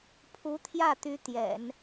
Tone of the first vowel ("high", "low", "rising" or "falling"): rising